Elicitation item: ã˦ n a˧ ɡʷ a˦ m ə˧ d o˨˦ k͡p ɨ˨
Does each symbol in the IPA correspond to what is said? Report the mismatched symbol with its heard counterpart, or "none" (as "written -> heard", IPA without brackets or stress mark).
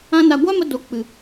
none